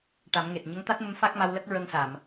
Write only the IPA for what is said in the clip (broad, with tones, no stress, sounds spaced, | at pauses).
ʈ a˨˩˦ m ŋ e˨˩ t̚ ɲ ə˧˥ ŋ t̪ a˦˥ t̚ m ə˧˥ m f a˦˥ k̚ m a˧ w l ə˦˥ k̚ ɹ ə˧ ŋ s a˨˩˨ m